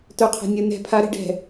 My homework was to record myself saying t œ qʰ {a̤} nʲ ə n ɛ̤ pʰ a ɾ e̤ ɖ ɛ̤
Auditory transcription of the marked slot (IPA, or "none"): a̤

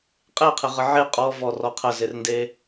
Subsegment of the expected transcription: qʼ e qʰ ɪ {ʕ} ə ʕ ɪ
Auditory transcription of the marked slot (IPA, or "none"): ʁ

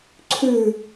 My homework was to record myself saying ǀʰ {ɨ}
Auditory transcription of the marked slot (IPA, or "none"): ʉ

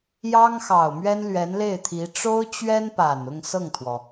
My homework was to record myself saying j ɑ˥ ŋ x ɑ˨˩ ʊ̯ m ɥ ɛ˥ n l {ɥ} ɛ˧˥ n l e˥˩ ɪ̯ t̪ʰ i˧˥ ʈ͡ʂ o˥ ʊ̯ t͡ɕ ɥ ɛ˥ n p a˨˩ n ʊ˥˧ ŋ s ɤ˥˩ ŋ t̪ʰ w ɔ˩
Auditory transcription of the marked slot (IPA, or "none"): ɥ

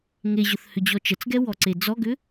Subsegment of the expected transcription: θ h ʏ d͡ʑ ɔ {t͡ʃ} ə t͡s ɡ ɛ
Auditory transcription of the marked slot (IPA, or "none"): t͡ʃ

